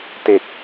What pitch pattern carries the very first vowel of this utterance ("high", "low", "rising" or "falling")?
low